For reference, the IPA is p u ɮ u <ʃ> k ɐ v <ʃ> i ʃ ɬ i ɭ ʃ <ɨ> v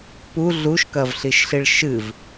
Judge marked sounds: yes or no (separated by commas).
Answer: yes, no, yes